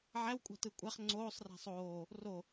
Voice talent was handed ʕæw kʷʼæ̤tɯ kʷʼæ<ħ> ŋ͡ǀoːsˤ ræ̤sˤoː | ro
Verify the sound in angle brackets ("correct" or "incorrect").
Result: incorrect